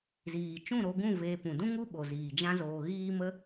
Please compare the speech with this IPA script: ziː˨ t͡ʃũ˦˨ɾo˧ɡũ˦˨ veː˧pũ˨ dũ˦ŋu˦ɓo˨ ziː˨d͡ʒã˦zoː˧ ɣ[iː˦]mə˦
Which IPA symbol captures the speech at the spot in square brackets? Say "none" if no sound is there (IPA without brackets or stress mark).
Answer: iː˦